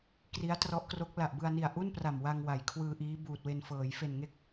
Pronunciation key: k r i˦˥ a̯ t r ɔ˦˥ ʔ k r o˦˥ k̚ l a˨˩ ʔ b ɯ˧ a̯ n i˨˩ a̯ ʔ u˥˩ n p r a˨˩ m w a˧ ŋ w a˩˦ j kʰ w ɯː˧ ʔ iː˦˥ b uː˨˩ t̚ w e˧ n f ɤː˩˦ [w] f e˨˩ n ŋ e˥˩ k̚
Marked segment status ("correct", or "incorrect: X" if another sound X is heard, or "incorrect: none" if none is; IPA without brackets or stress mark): incorrect: j